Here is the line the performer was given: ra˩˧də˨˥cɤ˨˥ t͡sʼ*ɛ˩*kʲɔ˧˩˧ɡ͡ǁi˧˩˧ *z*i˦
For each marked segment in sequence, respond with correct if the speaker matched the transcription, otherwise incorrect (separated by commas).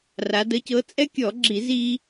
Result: incorrect, correct